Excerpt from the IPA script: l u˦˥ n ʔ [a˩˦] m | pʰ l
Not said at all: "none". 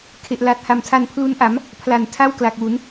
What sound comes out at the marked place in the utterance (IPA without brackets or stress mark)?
a˩˦